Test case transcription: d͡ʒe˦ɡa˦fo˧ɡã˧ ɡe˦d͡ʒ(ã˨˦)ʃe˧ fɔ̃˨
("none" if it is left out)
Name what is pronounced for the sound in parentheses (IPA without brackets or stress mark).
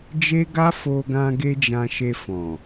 ã˧